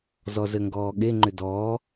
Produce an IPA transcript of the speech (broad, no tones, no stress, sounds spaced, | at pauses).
z ɔ z ɘ ŋ ɡ ɔː ɠ e ŋ͡ǃ ʏ d ɔː